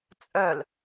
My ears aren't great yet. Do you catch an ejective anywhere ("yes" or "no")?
yes